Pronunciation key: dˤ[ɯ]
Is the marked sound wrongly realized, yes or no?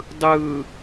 no